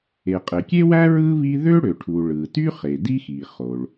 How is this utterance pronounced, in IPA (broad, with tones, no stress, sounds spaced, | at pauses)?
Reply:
e˩ qʼ e˩ kʲ e˥ w æ˥ ɹ ɯ˥ β i˥ ð ø˥ ɽ ø˩ ʈʰ u˩ ɭ ɯ˩ t y˥ χ e˩ d i˥ x i˩ χ o˩ ɭ